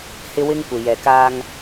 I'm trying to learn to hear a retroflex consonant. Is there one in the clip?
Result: no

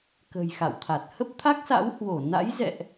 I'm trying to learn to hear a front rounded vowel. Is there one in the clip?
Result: no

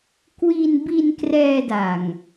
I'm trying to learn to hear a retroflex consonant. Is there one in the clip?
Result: no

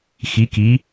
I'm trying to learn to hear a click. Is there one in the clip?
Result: no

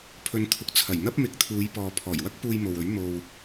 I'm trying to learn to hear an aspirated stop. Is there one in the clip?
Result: yes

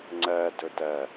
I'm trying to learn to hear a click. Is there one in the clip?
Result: yes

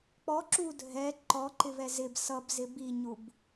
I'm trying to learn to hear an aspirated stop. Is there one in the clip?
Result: no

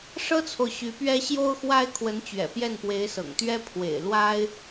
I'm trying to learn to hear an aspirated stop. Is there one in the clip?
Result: yes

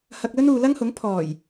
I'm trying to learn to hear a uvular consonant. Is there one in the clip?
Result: no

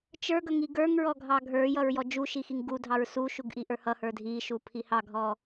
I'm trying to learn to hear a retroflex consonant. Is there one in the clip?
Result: no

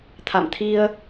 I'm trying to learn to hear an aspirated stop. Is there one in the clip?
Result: yes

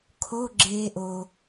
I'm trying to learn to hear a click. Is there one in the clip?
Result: yes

